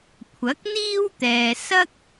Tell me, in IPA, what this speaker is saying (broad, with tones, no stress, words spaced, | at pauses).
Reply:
kʷʰɐ˨˥k̚n̪iː˥wt̪ɛː˨ sɐ˥k̚